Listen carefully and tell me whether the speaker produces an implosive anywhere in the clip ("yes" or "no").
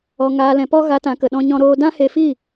yes